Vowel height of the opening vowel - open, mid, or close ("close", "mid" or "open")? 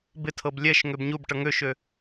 close